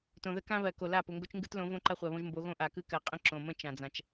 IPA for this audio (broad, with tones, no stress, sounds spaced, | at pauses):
t õ˨ ð ə˦ k ã˦ β ɜ˨ k o˨ l a˦˨ p ʊ˨ ŋ ɡ o˦ t͡ʃ ŋ ɡ ɯ˦ t l õ˨˦ v õ˦ ǃ a˦ χʷ ɜ˨ β õ˦ ʒ m b o˨˦ ɣ õ˦ ʔ a˨ k ɯ˦ k ɜ˨ qʼ ə̃˦ ǁ õ˨ m ə̃˦ t͡ʃ ã˨ d͡z ã˨ t͡ʃ